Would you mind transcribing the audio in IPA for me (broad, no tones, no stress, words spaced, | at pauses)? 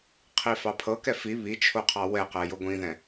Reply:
qʰifɑpʰɤkɛ fi βit͡ʃʰoqʰɑ wɛqɛ joɡʷĩðɛ̃